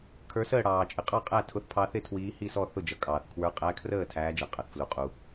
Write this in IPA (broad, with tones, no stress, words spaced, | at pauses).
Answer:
kʰə˞˨˥səː˥˩ ɽɑː˩t͡ʃʼɪ˩qʼɑ˥˩ qʼæ˥˩ tʰʊ˨˥θpʰɑ˨˥θɪ˥˩ tʰwiː˨˥hi˥˩sɔ˥˩ θʊ˥˩d͡ʒʌ˩ kʼɑː˩θkʰwə˞˨˥ qʼæ˨˥kʰrəː˥˩ tʰæː˨˥d͡ʒæ˩qʼɑ˩θflu˩ qʼu˩